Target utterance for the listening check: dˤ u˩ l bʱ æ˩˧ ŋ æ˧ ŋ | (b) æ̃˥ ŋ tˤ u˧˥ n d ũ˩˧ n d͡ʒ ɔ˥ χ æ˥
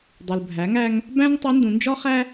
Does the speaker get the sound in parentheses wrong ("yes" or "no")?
no